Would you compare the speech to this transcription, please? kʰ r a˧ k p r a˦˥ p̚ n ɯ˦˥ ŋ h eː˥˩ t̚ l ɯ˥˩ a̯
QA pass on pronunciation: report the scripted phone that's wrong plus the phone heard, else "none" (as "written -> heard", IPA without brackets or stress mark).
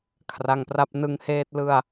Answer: k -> ŋ